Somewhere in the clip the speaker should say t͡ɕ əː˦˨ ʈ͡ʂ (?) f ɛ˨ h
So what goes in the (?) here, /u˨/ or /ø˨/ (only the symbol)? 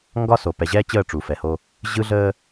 u˨